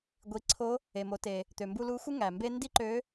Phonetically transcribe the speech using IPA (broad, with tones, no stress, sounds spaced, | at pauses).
ɡʷ i˩˧ ǀʰ o˧˥ | e˩ m o˩˧ t e˩ | t̪ ø˩ m b u˧ l u˧˥ xʷ ɯ˥ ŋ æ˩ m b e˥ n d i˥ ǃ ø˧˥